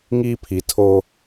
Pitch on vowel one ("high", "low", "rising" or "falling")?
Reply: high